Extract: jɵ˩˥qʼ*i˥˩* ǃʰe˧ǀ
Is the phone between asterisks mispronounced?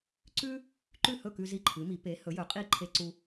no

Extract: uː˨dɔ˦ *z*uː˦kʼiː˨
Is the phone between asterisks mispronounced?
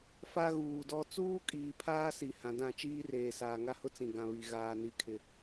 yes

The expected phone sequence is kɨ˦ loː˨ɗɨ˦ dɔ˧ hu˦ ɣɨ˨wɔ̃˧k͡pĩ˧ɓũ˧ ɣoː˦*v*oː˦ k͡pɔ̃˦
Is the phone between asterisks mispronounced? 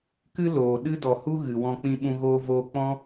no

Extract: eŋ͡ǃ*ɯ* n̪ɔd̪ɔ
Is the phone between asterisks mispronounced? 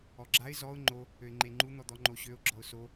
yes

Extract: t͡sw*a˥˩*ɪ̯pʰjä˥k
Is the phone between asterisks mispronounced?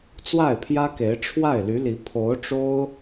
no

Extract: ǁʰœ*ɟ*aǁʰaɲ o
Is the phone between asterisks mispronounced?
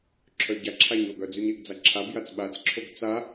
no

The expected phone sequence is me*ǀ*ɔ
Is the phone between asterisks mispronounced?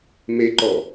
yes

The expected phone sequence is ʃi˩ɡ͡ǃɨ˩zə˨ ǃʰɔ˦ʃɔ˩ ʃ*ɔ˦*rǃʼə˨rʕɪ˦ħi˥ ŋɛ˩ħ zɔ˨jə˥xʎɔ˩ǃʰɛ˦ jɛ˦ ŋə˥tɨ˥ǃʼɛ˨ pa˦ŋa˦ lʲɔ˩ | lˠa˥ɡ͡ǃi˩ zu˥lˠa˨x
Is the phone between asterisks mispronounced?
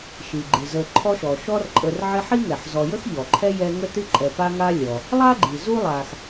no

